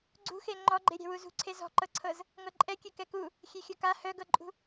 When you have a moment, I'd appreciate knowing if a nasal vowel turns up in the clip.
no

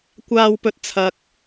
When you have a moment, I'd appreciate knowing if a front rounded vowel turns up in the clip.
no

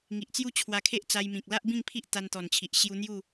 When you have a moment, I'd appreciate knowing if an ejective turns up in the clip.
no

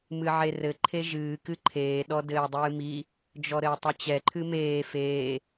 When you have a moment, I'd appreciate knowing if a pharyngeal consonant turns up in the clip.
yes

